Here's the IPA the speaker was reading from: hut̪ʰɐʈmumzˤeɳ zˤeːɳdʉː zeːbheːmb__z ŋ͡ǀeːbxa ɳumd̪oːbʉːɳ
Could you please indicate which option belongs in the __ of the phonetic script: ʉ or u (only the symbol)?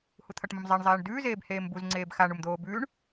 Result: u